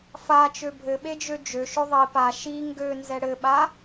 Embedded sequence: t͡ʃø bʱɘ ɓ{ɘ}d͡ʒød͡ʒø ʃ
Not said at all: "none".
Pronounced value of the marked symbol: e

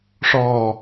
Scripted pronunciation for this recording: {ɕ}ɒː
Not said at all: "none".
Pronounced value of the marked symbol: ʂ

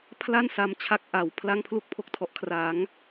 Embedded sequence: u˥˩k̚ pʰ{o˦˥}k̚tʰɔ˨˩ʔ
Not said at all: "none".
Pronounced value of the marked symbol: o˦˥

